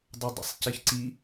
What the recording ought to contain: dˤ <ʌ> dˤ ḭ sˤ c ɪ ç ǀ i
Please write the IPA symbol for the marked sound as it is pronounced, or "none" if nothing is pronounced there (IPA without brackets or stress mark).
ʌ